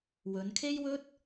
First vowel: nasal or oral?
oral